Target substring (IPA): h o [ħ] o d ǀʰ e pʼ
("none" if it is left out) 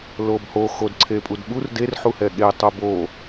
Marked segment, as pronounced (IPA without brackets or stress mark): x